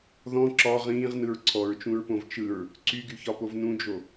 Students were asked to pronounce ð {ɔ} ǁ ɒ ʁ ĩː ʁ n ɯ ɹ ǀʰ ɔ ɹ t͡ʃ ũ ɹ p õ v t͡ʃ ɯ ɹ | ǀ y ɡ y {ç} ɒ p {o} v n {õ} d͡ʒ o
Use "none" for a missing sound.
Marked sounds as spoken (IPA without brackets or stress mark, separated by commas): ɔ̃, ç, o, ũ